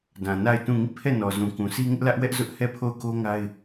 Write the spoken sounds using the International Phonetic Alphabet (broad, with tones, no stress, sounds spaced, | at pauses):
d ã˨ n a˦˨ ɪ̯ t ũ˦˨ ŋ i˦˨ pʰ ɛ˦˨ n ɔ˨ z ũ˨ k ũ˨ sʰ i˦ ŋ ɪ˦ ʔ l ä˦ ʔ w ɛ˦ ʔ z ʊ˦ ʔ h ɛ˦˨ pʰ o˦˨ ʊ̯ k o˦ ŋ a˦ ɪ̯